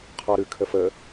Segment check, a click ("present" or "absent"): absent